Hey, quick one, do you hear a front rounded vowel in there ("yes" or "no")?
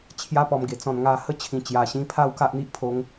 no